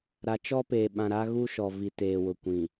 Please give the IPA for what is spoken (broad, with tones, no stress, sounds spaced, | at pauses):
ɾ a˨ t͡ʃ ɔ˦ p eː˨ ɓ ã˨ ɾ a˦ ɣ u˦ ʃ ɔ˨ v i˨ t eː˨ w ʊ˨ kʷ ĩ˨